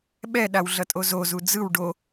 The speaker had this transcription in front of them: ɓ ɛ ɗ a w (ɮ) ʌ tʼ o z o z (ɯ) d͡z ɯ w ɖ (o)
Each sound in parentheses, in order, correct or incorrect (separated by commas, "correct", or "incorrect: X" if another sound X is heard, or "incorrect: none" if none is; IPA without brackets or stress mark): correct, incorrect: u, correct